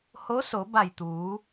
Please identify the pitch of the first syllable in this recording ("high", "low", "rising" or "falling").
rising